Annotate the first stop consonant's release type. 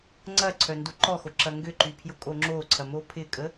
click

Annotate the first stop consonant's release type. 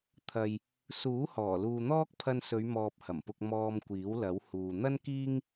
aspirated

